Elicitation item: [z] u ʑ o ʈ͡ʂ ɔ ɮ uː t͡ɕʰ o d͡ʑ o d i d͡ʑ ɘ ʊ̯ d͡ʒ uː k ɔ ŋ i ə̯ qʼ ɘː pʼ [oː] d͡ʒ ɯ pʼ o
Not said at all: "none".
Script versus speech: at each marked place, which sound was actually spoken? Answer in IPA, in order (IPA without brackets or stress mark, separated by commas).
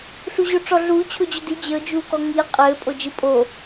ɬ, o